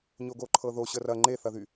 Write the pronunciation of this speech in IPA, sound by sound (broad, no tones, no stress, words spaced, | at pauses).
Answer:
ɲoɡoǃʰɤðo ɕərɐ ŋ͡ǃeθɐðy